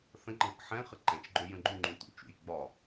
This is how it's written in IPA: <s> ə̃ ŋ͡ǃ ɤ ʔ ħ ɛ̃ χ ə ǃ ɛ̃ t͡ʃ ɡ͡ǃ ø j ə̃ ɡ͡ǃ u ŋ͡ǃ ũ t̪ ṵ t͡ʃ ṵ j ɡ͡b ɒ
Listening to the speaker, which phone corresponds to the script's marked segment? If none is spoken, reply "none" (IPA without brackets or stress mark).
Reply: θ